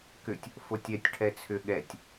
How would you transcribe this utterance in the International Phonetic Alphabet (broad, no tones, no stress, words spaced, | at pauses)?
kʏtʲ | fotʲɛtʲ ʈʰɛt͡sʰʏ ɠɛtʲ